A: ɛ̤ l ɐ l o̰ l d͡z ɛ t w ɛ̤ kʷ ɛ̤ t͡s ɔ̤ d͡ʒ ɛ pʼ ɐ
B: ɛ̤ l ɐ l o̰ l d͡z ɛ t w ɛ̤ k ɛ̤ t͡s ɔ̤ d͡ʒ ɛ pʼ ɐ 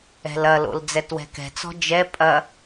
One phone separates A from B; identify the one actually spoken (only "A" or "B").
B